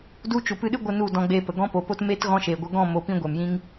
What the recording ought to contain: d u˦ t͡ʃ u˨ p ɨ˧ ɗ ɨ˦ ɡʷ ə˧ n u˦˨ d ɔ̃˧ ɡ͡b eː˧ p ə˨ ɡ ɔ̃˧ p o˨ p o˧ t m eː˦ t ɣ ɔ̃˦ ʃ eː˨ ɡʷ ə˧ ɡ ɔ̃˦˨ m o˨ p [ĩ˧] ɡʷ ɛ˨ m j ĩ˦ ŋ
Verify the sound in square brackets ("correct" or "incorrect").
correct